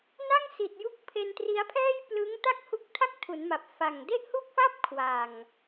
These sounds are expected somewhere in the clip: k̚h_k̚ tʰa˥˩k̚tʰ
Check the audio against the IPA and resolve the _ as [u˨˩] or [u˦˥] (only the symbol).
u˦˥